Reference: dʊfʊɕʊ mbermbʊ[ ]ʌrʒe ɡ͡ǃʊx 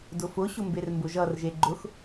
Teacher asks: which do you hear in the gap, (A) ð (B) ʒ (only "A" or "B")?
B